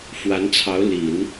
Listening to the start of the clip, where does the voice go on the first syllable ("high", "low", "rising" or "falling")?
rising